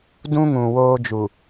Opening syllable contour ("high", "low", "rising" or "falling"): high